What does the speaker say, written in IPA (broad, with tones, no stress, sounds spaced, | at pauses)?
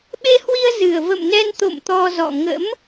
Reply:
ɓ e˧ h w i˧ ə̯ z ɨ˨˩ ə̯ v ə̰˧˨ m n ɛ˧ n t̪ o̰˧˨ m t̪ ɔ˧ z ɔ̰˧˨ ŋ ə̰˧˥ m